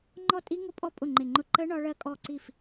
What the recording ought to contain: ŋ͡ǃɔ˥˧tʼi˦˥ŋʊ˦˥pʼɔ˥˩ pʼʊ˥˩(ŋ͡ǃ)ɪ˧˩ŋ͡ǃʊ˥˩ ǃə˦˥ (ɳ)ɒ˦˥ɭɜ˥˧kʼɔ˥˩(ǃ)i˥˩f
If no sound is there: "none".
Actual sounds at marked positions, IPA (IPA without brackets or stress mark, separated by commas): ŋ͡ǃ, ɳ, ǀ